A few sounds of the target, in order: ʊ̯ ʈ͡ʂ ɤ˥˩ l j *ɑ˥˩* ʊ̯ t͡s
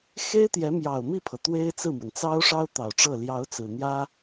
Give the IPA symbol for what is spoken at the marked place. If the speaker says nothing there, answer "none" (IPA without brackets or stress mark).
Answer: ɑ˧˥